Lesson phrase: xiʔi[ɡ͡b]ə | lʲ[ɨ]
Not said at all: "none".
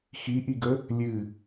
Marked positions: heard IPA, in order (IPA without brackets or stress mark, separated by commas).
ɡ, ɨ